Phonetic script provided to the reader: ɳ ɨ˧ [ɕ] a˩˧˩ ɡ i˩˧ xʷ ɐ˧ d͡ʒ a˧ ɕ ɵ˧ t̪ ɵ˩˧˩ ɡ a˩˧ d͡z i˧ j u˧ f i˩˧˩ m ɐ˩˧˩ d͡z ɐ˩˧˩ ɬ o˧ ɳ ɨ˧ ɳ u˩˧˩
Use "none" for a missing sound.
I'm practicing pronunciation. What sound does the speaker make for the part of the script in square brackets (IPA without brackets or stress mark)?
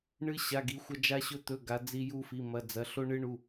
ɕ